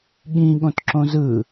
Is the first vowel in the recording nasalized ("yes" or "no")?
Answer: yes